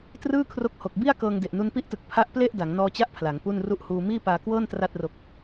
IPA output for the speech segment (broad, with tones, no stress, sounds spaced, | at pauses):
t r ɯː˥˩ kʰ r o˦˥ k̚ h o˨˩ k̚ b i˥˩ a̯ k ɤː˧ ŋ d e˨˩ ʔ n u˧ n p i˦˥ ʔ t ɯ˨˩ k̚ pʰ a˦˥ ʔ p l e˥˩ ʔ d a˩˦ ŋ n ɔː˧ t͡ɕ a˦˥ ʔ pʰ l a˩˦ ŋ p u˥˩ n r u˥˩ ʔ h uː˧ m iː˥˩ p aː˧ k w ɤː˥˩ n t r a˥˩ t̚ r o˦˥ k̚